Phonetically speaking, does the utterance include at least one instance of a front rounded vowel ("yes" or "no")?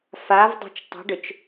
yes